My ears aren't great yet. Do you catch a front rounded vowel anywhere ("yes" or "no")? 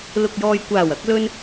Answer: no